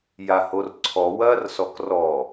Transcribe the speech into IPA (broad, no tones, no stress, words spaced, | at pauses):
jahorǀʰɔ wɐːrsɔkrɔ